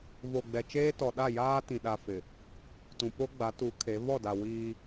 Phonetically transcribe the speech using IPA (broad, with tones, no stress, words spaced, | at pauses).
vo˨ɡ͡bɛ˨t͡ʃeː˦tɔ˨ ɗa˦˨jaː˦ tĩ˨ ɗa˦fɪ˨ | tũ˨po˦ɡ͡ba˨˦ tu˨˦ kʰe˨˦ vɔ˦˨da˨ wiː˦